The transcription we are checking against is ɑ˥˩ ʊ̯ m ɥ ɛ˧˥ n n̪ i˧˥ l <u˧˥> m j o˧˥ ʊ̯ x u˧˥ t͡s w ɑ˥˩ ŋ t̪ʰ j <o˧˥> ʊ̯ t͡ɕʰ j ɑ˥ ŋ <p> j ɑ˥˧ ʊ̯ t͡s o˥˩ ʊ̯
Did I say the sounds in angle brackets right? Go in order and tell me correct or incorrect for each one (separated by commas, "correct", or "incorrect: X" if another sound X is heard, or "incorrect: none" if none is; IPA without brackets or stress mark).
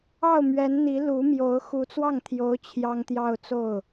correct, correct, incorrect: t̪